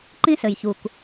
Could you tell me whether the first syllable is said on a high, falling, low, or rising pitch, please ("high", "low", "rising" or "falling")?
high